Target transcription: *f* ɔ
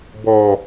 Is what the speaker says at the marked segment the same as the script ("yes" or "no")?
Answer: no